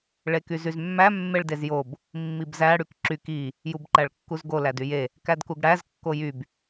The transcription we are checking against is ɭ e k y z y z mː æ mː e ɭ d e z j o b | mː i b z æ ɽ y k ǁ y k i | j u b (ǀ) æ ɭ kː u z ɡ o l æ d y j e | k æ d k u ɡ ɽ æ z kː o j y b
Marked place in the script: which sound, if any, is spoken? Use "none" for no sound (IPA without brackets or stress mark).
ǃ